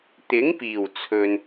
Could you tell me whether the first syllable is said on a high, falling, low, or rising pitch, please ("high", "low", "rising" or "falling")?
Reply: rising